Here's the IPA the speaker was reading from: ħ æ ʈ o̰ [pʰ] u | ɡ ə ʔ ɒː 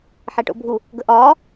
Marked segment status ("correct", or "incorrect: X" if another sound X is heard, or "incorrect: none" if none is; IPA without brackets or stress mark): incorrect: bʱ